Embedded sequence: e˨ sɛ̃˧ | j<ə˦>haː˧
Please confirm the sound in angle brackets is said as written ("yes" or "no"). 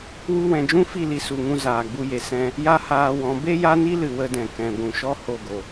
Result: no